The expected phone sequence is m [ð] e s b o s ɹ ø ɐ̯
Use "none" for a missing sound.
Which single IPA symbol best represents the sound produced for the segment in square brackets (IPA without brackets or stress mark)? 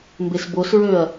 b